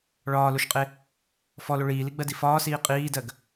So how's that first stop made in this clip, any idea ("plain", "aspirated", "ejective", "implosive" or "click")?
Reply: ejective